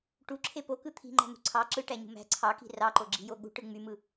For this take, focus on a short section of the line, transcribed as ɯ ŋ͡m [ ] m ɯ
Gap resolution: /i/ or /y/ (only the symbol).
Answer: y